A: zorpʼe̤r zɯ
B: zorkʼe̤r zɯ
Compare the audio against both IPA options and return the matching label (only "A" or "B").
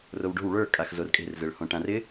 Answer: B